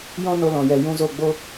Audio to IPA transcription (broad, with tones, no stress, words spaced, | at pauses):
jɔ̃˦ no˧lɔ̃˨jɛ˨ jũ˧zo˦˨ɡ͡bo˦